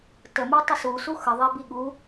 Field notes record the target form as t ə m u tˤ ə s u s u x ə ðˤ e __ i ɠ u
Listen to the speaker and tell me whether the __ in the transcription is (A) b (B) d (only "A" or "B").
A